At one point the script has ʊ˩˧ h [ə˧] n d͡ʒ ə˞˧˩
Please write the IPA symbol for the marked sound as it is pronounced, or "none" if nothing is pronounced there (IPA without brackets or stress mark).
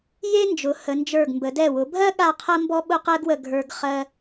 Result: ə˩˧